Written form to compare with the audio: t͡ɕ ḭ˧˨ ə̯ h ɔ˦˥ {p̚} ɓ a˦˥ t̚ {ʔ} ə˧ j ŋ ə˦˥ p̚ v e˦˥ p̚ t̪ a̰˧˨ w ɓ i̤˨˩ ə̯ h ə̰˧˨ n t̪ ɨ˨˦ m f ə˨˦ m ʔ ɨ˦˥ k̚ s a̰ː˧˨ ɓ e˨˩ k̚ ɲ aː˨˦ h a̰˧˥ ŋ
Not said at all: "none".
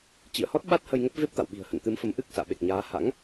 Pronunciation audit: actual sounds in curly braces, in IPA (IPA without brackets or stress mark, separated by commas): t̚, h